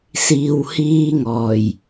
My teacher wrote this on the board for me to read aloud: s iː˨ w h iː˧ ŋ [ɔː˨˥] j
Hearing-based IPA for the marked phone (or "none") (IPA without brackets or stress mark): ɔː˨˩